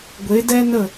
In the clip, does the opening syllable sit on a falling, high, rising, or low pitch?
rising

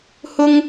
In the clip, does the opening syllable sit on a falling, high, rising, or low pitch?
high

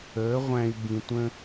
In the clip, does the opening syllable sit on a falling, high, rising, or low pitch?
rising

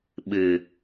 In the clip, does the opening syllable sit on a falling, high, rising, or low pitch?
low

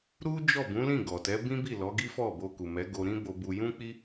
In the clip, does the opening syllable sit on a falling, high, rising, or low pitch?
high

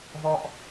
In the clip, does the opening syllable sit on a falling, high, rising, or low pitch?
high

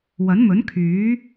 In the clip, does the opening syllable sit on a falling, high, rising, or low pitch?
rising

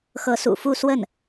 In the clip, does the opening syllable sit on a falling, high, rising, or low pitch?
rising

